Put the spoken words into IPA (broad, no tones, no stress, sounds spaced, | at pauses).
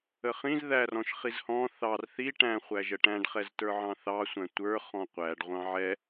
ə χ ĩ z ð æ r ɔ̃ ʃ χ i z h ɔ̃ θ ɑ r θ i ʈ æ̃ χʷ æ ʒ ə ʈ æ̃ ɖ χ ɛ z t ə˞ ʕ ɑ̃ θ ɑ sʷ æ̃ tʷ ə˞ χ ɔ̃ qʷ æ ɖ ʁʷ ɑ̃ ʕ ɛ